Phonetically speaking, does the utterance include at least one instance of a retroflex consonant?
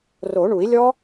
yes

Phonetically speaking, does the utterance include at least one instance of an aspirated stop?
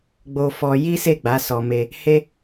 no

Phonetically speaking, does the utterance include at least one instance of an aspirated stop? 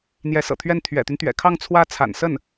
yes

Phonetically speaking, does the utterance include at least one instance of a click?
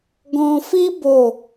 no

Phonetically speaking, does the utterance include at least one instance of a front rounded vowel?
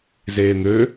yes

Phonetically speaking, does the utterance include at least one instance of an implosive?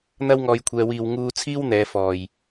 no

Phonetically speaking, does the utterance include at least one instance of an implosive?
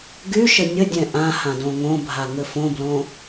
no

